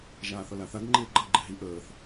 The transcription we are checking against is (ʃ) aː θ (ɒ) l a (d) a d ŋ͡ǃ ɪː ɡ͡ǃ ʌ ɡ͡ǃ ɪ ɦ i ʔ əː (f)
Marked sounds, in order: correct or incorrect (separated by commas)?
incorrect, incorrect, incorrect, incorrect